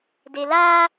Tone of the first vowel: low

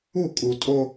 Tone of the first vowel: falling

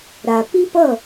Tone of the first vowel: low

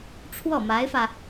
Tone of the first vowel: falling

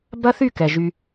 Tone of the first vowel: high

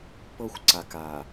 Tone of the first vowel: high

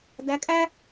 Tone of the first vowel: rising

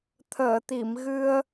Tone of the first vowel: low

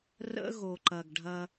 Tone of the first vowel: high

